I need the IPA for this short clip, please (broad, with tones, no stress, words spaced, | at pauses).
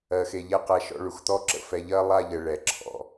ɜ˧xe˧ʎɛ˦ qɛ˧ ʃɔ̰˧ɭu˨xt̪ɔ˦ǁə̰˦˨ fɛ˧ʎɜ˦ lˠa˦˨ʎə˨ ɭɛ˨ǁʰɔ̰˨